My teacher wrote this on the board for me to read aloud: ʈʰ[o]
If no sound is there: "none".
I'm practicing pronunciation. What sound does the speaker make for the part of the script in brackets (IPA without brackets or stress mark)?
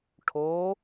o